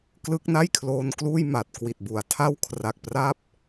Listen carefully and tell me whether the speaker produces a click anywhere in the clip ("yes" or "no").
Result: no